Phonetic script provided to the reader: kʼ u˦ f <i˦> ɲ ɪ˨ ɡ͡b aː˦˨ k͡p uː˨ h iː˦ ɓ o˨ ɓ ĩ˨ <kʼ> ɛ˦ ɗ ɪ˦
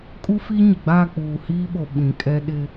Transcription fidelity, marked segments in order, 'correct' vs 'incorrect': correct, correct

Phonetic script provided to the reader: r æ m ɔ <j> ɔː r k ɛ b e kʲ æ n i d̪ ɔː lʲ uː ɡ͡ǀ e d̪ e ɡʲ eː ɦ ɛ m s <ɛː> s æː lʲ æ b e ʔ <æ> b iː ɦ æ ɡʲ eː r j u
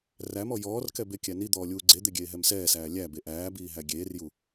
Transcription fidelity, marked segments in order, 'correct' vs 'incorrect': correct, correct, incorrect: æː

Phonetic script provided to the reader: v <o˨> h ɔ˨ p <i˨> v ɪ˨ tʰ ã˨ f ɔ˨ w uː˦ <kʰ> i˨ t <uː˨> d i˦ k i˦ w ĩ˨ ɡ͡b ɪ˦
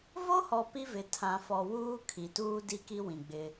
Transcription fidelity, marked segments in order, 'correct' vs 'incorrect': incorrect: o˦, incorrect: i˦, correct, incorrect: uː˦

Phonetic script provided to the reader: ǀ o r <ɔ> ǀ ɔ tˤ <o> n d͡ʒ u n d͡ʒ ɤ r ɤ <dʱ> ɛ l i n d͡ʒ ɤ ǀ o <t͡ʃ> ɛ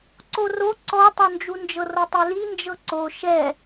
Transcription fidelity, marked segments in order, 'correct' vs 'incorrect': incorrect: o, correct, incorrect: tˤ, incorrect: ʃ

